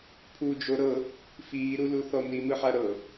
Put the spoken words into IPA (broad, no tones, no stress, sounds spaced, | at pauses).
pʰ u d͡ʒ o ɾ ɤ | f iː ɾ u l u θ ɔ n̪ i m ɯ ħ a ɾ ɤ